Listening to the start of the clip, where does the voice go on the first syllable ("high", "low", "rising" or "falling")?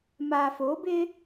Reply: low